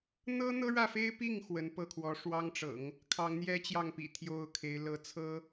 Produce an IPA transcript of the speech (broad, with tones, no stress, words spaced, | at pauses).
n̪ɤ˥n̪ɤ˥ɻä˥˩fe˥ɪ̯ pi˥˩ŋ xwə˧˥npɤ˥˩kʰwɔ˧˥ ʂwɑ˥ŋʈ͡ʂɤ̰˨˩˦ŋ | kʰɑ˧˥ŋn̪jɛ˥t͡ɕjɑ˥˩ŋ pḭ˨˩t̪ʰjo˥˩ʊ̯kʰe˧˥ɪ̯ lɤ˧˥t͡sʰɤ˥